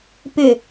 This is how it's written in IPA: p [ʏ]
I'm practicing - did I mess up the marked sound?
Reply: no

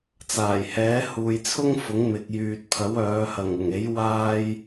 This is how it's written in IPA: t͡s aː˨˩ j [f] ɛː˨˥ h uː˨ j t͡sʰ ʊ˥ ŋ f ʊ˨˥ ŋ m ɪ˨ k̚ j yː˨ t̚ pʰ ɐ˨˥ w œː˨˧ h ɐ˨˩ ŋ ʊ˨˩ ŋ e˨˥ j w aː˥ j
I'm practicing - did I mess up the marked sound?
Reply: yes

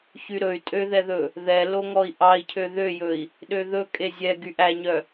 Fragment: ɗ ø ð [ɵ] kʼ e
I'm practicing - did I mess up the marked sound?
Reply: no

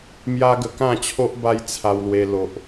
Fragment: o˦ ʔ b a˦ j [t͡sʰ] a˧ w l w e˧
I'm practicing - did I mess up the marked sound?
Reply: no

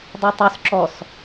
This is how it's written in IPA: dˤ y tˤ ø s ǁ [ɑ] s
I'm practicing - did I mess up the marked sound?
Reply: yes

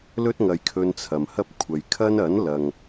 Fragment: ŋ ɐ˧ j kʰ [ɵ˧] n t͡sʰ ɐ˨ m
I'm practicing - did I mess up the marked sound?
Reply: no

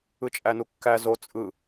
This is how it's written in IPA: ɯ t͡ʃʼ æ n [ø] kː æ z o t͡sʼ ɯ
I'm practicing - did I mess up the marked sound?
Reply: yes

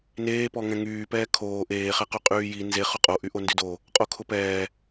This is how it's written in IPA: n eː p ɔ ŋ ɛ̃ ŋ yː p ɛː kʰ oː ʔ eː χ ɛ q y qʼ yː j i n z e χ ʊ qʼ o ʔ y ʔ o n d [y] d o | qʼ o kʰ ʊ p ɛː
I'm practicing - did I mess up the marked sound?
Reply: no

